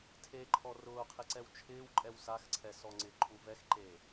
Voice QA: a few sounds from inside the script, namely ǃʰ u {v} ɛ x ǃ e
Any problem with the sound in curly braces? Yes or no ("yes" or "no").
no